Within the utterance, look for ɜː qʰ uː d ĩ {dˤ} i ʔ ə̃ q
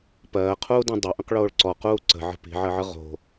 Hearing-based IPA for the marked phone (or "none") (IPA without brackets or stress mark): dˤ